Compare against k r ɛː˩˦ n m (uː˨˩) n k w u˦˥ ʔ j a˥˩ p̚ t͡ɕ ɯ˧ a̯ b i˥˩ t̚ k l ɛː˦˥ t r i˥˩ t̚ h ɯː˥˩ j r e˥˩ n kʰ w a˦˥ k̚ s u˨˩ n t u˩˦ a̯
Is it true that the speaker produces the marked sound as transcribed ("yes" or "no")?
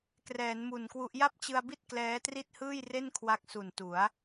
no